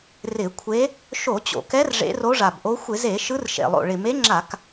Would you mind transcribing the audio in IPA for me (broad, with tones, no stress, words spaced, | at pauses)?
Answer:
rɪ˧˩˧kʷʰe˧˥ | ʃo˧˩˧t͡ɕo̰˨˩kɛ˧˥r ʐḛ˧˥ro˧˥ʐa˨˩bʔo˧˥ xʷɪ˧˩˧ze˧˩˧ ʃɯ˧˥rʃḛ˨˩lˠo̰˨˩ ɭɪ˨˩me˧˥ŋ͡ǁa˧˩˧k